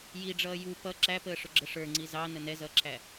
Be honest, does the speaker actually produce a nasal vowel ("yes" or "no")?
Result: no